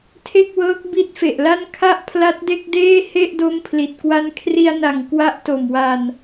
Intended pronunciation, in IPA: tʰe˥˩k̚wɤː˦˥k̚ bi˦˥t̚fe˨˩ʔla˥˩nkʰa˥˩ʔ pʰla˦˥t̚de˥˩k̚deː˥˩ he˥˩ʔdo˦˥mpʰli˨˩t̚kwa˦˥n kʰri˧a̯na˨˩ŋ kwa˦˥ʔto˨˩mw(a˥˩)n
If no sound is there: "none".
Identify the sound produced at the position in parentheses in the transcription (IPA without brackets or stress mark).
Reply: a˧